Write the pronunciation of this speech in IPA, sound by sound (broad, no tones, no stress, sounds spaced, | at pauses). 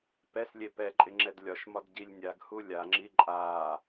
p ɛ s lʲ e p ɛ ǃʼ ɪ ŋ͡ǁ ɛ d lʲ ɒ ʃ m ɒ d ɟ i lʲ nʲ a ɡ h u lʲ a ŋ͡ǁ i ǃʼ a